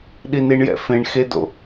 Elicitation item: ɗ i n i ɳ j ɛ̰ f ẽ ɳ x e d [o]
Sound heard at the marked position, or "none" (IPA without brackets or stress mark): o̰